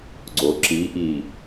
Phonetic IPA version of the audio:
ɡ͡ǀ o ǁ i ʔ i

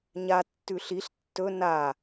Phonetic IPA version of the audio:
ɲ a tː ʉ ɬ i ɬ tː ɵ n a

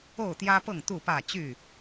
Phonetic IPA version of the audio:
o˥˨ ʊ̯ t̪ j ä˦ p ɤ˥˨ ŋ t̪ u˥˨ p ä˥˨ t͡ɕ y˥˨

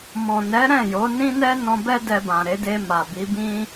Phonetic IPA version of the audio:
m ɔ̃˨ n ɛ˨˦ ɾ ɛ̃˦˨ j o˨˦ n ĩ˦ n ɛ˦ n ɔ̃˧ b ɛ˦ d ɛ˧ b ã˨ ɾ e˨˦ d e˧ m a˨ b i˨˦ b ĩ˦

